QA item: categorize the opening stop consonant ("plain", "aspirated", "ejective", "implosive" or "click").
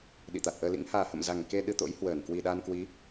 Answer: implosive